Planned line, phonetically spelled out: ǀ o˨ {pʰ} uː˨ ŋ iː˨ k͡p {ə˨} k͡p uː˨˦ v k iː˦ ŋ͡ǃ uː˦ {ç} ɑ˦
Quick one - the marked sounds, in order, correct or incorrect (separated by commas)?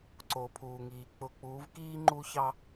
correct, incorrect, correct